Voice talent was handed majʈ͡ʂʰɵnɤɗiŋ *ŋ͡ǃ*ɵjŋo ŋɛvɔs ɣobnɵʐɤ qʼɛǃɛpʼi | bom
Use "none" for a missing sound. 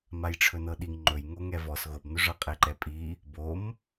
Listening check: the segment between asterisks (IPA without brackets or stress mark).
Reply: ŋ͡ǃ